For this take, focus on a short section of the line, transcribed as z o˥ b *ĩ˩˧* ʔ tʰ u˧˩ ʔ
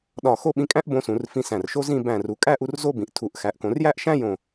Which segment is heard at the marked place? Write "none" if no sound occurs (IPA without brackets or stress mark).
ĩ˩˧